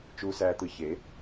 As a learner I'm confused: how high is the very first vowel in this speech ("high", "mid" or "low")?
high